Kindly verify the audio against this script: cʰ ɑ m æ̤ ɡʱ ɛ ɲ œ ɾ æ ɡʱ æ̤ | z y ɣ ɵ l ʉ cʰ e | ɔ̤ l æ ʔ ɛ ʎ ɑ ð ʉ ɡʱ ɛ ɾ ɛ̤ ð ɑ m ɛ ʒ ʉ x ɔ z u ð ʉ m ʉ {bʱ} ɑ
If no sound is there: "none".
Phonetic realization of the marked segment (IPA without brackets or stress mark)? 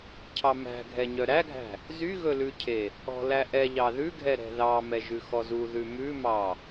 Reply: m